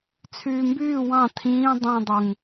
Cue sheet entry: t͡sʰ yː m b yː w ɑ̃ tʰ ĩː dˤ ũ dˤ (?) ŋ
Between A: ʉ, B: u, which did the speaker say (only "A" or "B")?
B